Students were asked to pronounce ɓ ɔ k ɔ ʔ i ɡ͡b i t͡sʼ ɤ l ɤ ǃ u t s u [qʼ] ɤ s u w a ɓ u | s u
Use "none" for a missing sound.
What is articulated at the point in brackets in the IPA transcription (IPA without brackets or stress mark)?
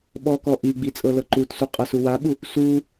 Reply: qʼ